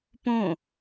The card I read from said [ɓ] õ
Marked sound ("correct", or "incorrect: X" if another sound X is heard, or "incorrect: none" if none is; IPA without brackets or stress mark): incorrect: p